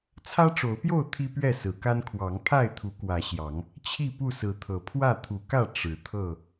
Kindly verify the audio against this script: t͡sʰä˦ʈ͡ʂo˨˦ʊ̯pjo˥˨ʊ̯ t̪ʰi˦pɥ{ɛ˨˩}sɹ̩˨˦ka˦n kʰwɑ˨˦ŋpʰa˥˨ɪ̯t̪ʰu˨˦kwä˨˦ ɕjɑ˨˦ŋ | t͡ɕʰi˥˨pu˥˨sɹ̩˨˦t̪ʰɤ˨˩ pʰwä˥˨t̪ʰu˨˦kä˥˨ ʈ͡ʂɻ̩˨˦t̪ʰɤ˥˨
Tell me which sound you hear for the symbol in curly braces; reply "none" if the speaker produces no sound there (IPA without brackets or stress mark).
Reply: ɛ˥˨